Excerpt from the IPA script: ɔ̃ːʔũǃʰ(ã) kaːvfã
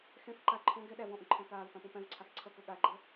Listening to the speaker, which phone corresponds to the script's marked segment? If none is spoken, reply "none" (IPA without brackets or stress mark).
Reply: æ̃